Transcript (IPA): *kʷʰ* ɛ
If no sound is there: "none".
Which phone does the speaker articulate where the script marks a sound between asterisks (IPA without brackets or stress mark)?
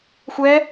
xʷ